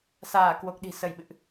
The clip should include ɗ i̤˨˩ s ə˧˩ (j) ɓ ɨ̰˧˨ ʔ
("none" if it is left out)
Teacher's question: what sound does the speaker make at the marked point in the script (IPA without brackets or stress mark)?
j